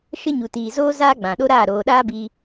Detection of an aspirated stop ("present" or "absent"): absent